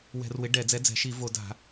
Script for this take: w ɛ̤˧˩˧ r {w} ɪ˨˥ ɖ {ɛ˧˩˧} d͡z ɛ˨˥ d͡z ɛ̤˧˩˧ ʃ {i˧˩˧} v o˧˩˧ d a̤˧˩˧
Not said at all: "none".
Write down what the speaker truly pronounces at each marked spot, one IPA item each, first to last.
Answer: w, ɛ˧˩˧, i˧˩˧

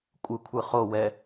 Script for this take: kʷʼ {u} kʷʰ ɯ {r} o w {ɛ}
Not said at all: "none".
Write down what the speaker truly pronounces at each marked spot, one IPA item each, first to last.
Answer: ɯ, χ, ɛ

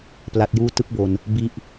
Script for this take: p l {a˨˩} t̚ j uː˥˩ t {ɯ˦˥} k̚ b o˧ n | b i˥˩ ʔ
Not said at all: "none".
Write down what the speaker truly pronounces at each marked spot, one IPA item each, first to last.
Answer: a˦˥, ɯ˦˥

